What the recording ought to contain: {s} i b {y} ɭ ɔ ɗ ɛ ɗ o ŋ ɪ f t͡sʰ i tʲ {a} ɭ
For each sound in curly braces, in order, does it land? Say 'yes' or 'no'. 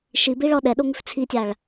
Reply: no, no, yes

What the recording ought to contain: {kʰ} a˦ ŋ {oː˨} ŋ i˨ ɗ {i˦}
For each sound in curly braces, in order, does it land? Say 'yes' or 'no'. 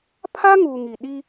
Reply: no, no, yes

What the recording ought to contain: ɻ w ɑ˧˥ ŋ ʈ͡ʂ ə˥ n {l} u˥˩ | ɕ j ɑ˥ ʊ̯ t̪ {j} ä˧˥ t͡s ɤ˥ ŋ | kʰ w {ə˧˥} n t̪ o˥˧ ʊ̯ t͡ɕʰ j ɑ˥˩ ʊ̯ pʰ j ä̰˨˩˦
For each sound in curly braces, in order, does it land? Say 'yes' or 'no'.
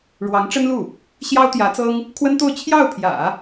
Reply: yes, yes, no

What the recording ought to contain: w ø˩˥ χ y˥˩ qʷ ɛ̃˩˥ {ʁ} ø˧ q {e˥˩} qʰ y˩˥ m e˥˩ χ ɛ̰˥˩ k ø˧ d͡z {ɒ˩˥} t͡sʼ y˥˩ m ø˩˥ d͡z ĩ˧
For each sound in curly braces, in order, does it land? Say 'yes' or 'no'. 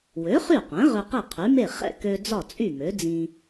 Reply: yes, yes, no

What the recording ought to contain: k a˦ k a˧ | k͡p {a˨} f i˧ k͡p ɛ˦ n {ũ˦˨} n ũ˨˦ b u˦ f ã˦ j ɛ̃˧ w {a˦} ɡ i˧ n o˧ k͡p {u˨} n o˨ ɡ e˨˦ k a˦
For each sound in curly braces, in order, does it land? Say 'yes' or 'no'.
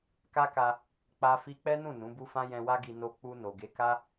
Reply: no, yes, yes, no

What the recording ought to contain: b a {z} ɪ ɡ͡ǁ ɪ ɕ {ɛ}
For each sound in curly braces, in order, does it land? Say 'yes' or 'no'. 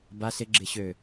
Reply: no, no

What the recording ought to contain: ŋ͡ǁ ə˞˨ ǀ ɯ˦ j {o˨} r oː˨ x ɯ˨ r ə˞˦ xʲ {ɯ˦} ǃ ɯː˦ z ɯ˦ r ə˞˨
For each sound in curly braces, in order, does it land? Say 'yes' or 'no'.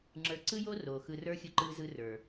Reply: no, yes

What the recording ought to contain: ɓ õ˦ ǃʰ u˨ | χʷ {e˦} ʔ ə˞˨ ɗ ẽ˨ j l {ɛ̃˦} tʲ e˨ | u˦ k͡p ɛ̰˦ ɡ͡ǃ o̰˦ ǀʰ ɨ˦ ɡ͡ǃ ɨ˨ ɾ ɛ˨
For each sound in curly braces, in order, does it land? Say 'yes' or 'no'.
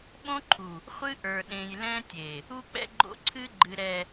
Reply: no, yes

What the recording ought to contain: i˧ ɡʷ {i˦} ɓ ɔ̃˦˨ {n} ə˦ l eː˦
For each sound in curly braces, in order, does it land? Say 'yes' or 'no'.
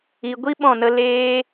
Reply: yes, yes

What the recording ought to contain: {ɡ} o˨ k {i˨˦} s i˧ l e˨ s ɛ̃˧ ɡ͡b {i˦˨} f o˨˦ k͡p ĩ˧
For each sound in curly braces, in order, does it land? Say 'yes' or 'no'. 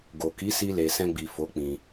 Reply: yes, yes, no

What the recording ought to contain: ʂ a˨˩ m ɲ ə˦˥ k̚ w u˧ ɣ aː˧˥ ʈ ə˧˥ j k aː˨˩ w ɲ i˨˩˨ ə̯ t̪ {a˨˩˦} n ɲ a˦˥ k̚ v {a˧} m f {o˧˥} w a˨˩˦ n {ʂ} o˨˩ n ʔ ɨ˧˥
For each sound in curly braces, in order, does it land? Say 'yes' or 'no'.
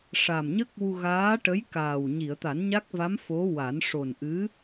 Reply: yes, no, yes, yes

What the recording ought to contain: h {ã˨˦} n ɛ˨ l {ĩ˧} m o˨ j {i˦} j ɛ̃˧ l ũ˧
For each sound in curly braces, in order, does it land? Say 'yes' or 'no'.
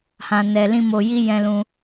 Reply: no, yes, no

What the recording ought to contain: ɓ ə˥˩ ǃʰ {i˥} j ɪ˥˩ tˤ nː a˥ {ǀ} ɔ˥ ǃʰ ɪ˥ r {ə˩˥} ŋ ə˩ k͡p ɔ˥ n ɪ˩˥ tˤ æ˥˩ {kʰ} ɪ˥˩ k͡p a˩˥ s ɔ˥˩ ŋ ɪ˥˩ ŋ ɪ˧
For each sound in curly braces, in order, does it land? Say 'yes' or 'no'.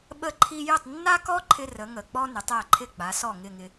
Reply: yes, no, yes, no

